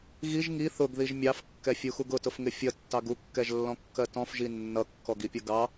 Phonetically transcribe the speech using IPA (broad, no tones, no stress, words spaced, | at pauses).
ɣiʒ ŋi θʊɡðiʒ mʲɑfkːɛfʲuxuɡ ʊtʊfŋɪ fʲʌtːɑɡ ukːɛʒlːɔ̃kːɜ tɔ̃fʒi nːʌkːɔɡipʲʌ ɡɑ